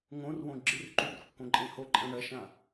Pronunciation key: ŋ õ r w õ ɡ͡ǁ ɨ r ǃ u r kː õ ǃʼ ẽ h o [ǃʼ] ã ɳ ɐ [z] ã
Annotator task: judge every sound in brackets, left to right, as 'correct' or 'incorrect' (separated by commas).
correct, incorrect